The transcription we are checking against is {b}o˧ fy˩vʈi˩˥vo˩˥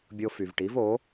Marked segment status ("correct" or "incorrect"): incorrect